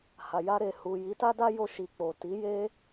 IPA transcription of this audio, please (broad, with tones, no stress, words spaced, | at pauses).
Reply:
ha˨ja˧ɾe˨ hu˨ji˨˦ta˦da˦ jo˧ʃi˨ k͡po˨ ti˨˦je˦